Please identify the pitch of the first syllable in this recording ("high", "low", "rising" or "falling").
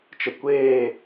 low